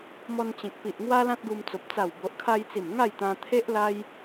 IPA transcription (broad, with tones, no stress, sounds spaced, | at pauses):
m ɔ˧ n t͡ɕ ẽ˨ k̚ p i˨ ʔ ŋ w a˦ l ã˦ t̚ ɡ u˧ m t͡s o˨ p̚ t͡s a˨˩ w b o˨ ʔ kʰ a˧ j t͡s i˨˩ m ŋ a˥˧ j t̪ ã˧ t̪ʰ e˦ ʔ l a˦ j